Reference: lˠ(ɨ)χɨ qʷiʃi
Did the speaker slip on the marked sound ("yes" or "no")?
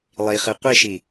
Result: yes